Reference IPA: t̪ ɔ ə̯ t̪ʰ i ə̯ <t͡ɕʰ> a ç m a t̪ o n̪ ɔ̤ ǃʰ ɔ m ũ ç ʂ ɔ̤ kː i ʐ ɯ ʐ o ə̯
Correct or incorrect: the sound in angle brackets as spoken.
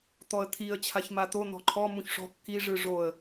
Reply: correct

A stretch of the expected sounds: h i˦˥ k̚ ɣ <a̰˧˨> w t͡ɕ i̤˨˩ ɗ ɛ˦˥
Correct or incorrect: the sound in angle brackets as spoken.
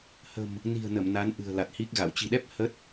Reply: correct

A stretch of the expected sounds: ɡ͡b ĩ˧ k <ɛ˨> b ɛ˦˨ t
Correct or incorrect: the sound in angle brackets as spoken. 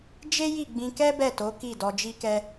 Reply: incorrect: ɛ˦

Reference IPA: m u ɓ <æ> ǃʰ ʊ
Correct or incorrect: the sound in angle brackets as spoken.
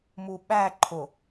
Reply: correct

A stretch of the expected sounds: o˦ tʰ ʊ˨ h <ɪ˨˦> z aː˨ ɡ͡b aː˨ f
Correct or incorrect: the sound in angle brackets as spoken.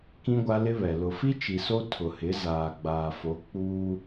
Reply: correct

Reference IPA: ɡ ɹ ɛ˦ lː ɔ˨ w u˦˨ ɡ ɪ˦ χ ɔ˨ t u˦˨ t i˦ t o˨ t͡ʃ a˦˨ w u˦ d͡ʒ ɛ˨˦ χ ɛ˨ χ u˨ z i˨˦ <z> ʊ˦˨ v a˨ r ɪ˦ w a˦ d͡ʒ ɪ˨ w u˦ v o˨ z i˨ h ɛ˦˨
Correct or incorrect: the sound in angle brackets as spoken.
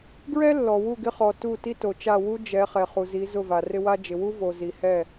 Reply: correct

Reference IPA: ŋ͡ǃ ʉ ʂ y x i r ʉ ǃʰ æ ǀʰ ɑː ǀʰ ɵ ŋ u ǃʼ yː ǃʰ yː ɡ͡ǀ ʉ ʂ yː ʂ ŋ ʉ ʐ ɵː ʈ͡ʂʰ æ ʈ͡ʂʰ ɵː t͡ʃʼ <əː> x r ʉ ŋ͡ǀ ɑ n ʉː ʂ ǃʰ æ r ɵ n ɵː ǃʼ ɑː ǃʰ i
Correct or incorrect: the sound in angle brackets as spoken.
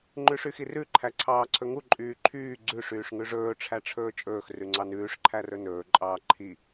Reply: incorrect: ɵː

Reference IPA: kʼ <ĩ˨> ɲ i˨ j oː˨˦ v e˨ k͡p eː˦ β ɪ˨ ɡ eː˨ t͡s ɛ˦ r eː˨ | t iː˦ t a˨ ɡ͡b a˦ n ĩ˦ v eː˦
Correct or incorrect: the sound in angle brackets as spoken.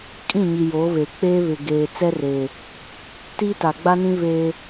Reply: incorrect: ĩ˦˨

